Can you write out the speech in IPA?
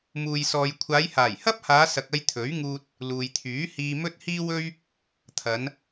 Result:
m uː˨ j s ɔː˨ j kʷʰ aː˨˧ j h aː˨˩ j h ɐ˥ p̚ h aː˨˧ s ɐ˨ k̚ ɐ˧ j t̪ʰ ɵ˨˥ ɥ ŋ uː˧ t̚ | l uː˨ j t̪ʰ yː˨˥ h iː˧ m ɵ˥ t̚ h iː˥ w ɵ˥ ɥ | t̪ʰ ɐ˨˧ n

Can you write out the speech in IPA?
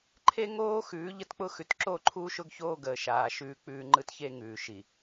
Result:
ǃʰ e˦ ŋ oː˦ x ʉː˨˦ ʎ ə˦ t k͡p ʊ˦ x ʉ˨ t ǁ o˦˨ ǃʰ uː˦ ʃ ʊ˦ ɡ ç oː˦ ɡ əː˨ ʃ aː˨ ʃ ʉː˦ k͡p ʉː˦ ŋ͡ǃ ɯ˦ t ç e˦ ŋ ʉː˨ ʃ i˨

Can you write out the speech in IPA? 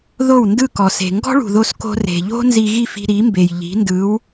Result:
ð o˥˩ w n d ɯ˥˩ k ɔ˩ s e̤˩ ŋ ɡ ɔ̤˥ ɭ ṳ˩ ð o˧ s k o̤˧ r e̤˩ ʎ o̤˥ n z i˧ ɣ i˥˩ f i̤˧ ɾ i˩˥ m b e˩ j ʎ i̤˩˥ n d ɯ˩˥ w

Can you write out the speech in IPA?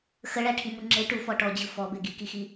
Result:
x ə ɭ æ ʈʰ i m u ŋ͡ǁ e ʈ u f ɔ ʈ ɔ d͡ʑ ɯ f ɔ b e ɡ i k i x i

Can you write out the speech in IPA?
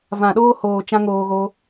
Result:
v ã˨ ɗ oː˧ h oː˨ t͡ʃ ã˦ ŋ oː˧ ɣ o˦

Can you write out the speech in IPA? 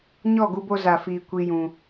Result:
ɲ ɔ˦˨ ɡ u˧ b o˧ z a˨ f iː˨ kʷ i˦ j ũ˧

